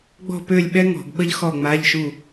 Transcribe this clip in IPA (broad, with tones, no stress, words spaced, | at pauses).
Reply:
ɡ͡bɔ̤˥˨pø˥˨lʲɓɛ˥ ŋɔ̤˧˩˧ɡɓə˥ʎ xɔ˥˨ŋ͡ma˧˥˧ʎʃu˥˨